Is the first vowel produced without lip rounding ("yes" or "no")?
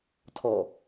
no